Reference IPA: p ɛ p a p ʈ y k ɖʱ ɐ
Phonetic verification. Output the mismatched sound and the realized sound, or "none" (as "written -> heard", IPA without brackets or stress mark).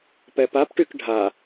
ɐ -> a